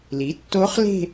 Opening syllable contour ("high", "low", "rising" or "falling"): rising